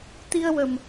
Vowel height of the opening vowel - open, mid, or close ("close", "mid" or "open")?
close